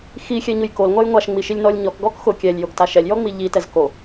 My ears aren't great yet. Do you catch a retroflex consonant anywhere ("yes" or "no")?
no